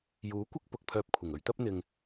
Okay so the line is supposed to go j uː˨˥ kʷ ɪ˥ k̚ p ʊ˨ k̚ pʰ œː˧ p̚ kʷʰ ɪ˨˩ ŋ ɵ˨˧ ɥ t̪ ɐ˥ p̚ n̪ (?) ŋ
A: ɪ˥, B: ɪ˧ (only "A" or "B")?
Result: B